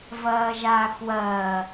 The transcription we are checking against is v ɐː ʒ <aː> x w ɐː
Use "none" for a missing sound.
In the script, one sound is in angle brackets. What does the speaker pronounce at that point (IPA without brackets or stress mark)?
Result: aː